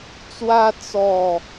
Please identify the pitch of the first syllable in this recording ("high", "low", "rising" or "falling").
high